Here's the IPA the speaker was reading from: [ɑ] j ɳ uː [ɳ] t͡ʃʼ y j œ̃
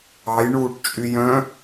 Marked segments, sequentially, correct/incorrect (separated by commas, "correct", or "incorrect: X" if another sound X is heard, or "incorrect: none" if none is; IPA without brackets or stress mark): correct, incorrect: ʈ